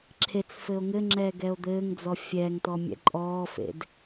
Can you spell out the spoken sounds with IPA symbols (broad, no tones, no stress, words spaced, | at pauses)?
ǁʰet͡sfɘo̯ ŋɘŋ͡ǁɛːɡɛo̯ d̪ɘːŋd͡zɔ fʲɛːŋtɔmʲɛ̰ ǃʼɔːfḛd